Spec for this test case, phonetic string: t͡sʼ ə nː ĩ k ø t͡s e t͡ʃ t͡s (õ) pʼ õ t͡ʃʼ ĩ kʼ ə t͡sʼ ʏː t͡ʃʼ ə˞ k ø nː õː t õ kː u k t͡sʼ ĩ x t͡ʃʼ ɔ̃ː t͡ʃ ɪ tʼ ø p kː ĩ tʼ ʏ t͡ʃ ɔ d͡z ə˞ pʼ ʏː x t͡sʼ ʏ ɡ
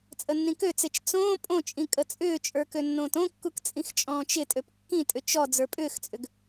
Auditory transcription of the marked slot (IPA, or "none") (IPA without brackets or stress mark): õː